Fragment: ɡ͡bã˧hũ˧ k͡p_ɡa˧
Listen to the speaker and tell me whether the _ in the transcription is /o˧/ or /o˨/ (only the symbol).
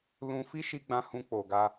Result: o˨